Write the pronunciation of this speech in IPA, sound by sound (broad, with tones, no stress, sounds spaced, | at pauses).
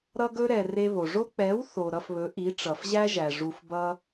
ɾ ʌ˧ ɡ ɵ˧ ɾ ɛ˨ r e˧ β o˨ ʐ o˦ k͡p ɛ˨˦ w θ o˨ ɾ ʌ˧ f β ɵ˨˦ ʔ i˨˦ ʈ͡ʂ ʌ˨ f ʑ æ˦ ʒ æ˨ ʐ u˧ f b ʌ˦